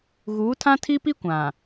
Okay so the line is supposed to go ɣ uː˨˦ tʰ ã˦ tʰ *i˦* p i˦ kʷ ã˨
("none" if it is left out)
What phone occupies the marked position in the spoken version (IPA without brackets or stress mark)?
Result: i˦